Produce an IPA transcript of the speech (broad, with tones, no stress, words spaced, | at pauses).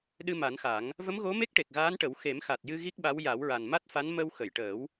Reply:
ɗɨ˧ma˨˩˦nxa˨˩˦ŋ | və˧˥mɣo˧˥ me˦˥k̚ʈe˨˩k̚ɣaː˧˥nʈə˨˩˦w xe˨˩˦mxa˨˩t̚jɨ˧ ɣi˦˥k̚ɓa˧˥w ja˨˩˦wɹa˨˩nma˦˥t̚fa˧˥n mə˧w xə˨˩˨jʈəː˨˩˦w